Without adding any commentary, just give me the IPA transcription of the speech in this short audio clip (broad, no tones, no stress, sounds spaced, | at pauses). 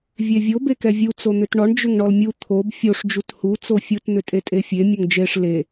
vʲ e vʲ o b e k ɛ vʲ u t͡s o n̪ ʏ t ɳ ɔ ɳ d͡ʒ ʏ ŋ ɳ ɔ l mʲ u t̪ʰ o b fʲ o ʂ d͡ʒ u t h u t͡s o fʲ u t n̪ ʏ tʼ e tʼ e fʲ e mʲ o ŋ d͡ʒ e ʂ l e